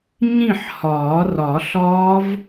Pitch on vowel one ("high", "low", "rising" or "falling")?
falling